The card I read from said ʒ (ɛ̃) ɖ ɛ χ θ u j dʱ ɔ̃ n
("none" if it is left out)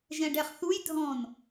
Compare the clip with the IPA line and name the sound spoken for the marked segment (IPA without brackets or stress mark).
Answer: ɛ̃